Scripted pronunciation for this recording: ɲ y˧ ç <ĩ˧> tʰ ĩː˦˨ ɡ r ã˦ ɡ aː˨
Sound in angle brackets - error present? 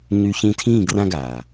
no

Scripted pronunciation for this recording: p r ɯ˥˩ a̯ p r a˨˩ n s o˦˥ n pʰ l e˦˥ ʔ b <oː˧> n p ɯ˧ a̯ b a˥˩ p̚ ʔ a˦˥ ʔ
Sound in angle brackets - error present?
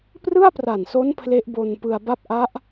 yes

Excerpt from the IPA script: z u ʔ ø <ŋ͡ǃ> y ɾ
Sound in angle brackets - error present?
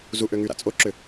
yes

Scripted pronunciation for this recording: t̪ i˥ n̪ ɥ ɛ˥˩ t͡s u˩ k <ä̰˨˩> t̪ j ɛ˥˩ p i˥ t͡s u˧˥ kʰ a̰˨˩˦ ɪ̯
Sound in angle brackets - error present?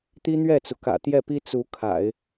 no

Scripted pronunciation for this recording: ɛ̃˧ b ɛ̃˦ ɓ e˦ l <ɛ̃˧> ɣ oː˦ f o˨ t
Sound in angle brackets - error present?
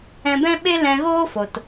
no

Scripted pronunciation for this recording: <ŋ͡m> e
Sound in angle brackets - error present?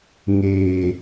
yes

